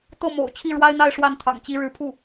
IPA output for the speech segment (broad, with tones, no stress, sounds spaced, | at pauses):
t̪ ɤ˥˩ m o̰˨˩ ʊ̯ t͡ɕʰ i˥˩ ɻ w a˥ ɪ̯ n̪ a˥˧ ɪ̯ ʂ w a˥˩ n t̪ʰ ɑ̰˨˩ ŋ t͡ɕ i˧˥ ɻ ɻ̩˧˥ pʰ u˥˩